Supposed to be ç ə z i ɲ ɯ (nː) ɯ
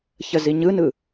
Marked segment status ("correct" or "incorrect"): incorrect